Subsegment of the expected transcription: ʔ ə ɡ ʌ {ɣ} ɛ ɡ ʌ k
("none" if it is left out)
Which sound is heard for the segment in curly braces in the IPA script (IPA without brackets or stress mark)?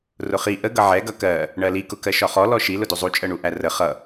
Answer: ʕ